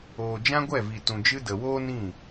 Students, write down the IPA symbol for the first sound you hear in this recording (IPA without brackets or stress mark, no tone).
oː